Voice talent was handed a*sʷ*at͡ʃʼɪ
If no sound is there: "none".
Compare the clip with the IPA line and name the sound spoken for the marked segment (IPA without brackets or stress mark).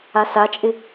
s